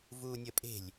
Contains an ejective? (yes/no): yes